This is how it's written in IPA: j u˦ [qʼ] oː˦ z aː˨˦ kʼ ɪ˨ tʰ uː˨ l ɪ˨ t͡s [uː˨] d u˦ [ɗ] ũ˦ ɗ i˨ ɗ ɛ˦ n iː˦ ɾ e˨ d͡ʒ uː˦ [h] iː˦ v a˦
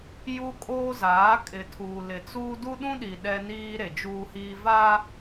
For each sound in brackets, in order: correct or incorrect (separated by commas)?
incorrect, incorrect, correct, correct